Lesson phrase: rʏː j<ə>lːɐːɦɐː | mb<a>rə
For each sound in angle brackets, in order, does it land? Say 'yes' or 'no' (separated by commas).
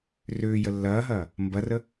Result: yes, no